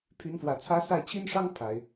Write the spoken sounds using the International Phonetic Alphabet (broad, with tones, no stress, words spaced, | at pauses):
pʰy˧˥nfwä˨˩t͡sʰä˥ sa˥˩ɪ̯ t͡ɕʰi˥nʂɑ˥ŋ pʰa˨˩˦ɪ̯